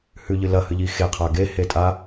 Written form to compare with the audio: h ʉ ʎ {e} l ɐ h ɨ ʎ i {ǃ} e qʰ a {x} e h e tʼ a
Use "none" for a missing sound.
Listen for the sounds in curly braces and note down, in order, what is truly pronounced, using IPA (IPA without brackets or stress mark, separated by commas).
ɨ, x, ɡ